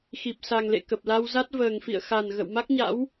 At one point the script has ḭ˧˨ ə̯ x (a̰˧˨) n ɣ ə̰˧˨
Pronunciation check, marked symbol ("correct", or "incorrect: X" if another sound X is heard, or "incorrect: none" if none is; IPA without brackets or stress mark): incorrect: a˨˩